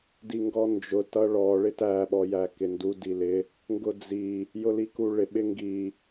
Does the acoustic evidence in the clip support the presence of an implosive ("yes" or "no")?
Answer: yes